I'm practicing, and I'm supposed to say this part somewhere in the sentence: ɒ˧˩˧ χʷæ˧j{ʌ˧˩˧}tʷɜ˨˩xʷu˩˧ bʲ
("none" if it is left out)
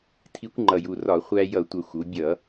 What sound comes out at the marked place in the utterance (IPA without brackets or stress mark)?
ʌ˧˩˧